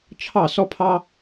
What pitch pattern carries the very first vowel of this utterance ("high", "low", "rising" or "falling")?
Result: falling